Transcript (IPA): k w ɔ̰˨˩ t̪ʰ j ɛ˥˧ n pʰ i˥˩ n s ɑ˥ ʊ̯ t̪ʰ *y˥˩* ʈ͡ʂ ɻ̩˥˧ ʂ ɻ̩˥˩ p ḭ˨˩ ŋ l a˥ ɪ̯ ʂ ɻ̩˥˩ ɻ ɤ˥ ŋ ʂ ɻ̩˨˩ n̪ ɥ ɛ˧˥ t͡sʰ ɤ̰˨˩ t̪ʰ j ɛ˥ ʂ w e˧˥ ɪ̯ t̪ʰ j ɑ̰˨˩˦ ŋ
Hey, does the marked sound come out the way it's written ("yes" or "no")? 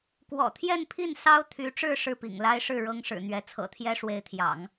no